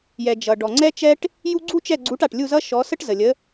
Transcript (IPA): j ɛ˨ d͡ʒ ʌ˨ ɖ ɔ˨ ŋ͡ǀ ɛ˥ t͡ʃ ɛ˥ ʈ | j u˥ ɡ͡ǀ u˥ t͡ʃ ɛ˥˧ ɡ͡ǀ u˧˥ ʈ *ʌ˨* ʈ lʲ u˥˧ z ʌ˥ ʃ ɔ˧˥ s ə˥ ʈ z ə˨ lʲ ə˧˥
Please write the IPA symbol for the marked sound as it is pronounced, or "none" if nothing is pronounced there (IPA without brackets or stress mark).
a˨